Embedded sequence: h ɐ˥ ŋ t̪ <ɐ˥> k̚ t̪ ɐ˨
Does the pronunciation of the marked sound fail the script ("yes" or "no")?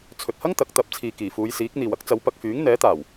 yes